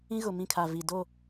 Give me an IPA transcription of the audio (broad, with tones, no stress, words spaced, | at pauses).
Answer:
ĩ˦ɣʊ˨mĩ˦˨kʰa˨ vi˨do˦˨